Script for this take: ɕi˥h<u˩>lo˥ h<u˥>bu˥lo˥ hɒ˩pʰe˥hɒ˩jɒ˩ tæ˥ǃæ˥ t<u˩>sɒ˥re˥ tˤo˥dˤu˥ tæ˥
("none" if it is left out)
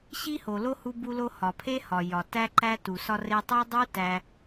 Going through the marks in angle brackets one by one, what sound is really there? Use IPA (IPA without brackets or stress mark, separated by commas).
o˩, u˥, u˩